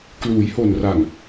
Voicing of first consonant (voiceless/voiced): voiceless